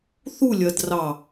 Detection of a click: absent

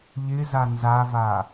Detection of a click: absent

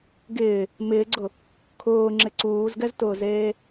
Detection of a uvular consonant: absent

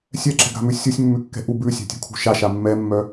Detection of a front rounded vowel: present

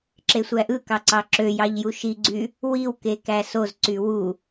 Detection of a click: present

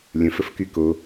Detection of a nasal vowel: present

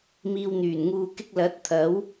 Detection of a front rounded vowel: present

